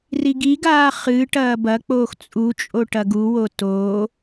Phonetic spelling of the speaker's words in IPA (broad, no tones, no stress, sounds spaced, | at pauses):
r i ɡ i ɡ aː χ ɨː ʈ ɐː b ɐ k͡p oː x t͡sʼ u t͡ʃʼ o ʈ ɐ ɡ u w o t oː